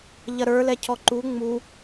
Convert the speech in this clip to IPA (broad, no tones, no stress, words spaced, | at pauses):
ʎɐɾə˞ lɛcʰɔǃu ŋ͡mu